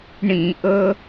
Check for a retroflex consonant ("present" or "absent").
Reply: present